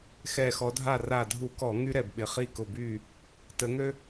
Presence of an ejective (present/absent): absent